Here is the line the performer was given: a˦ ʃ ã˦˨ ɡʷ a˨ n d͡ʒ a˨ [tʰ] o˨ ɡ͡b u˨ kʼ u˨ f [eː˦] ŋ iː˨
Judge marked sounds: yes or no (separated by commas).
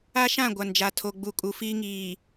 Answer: yes, no